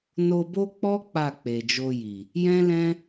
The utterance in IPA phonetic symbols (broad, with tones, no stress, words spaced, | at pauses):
no˧bo˦k͡pɔ˦ k͡pa˦˨k͡pe˨d͡ʒo˧ji˨ | jɛ̃˦lɛ̃˦